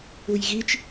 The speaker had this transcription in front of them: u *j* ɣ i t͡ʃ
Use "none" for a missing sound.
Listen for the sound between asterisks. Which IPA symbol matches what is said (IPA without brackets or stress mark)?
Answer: j